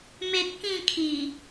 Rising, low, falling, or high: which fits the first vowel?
high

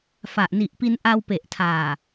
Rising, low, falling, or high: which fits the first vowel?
low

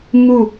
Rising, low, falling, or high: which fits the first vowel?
falling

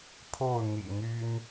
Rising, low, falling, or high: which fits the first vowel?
falling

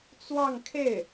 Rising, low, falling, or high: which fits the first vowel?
falling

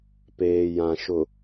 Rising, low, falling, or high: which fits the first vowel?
low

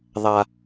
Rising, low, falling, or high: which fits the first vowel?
low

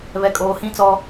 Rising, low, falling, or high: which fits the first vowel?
low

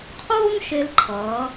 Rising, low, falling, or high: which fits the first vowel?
high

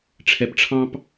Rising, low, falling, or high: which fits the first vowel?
low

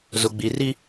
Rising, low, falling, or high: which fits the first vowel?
low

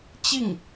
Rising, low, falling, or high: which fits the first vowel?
falling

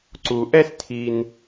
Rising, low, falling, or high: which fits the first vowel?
low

